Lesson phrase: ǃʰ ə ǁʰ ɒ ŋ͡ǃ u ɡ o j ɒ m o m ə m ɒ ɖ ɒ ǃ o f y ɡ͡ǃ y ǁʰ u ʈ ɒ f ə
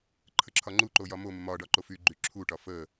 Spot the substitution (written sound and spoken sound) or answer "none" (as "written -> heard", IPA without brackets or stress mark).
ɡ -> ǃ